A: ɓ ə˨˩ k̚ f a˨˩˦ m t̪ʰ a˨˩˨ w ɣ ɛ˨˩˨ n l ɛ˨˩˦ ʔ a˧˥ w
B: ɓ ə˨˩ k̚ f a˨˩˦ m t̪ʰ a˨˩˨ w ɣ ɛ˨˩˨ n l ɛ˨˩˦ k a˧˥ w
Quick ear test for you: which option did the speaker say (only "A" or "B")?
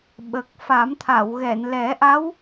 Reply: A